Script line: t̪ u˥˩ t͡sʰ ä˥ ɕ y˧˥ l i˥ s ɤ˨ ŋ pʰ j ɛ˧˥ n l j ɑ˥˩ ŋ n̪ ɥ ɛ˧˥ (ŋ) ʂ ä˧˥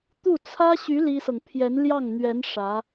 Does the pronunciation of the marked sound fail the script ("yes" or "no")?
yes